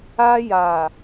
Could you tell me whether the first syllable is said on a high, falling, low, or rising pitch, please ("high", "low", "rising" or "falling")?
high